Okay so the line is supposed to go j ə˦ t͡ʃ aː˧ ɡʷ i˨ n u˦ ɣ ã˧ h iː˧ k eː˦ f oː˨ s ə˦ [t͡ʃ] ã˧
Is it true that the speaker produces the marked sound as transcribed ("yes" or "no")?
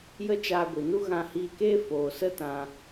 no